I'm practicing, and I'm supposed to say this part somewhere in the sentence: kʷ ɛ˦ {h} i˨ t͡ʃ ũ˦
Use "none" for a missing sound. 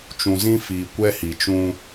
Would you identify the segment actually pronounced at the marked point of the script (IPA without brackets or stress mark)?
h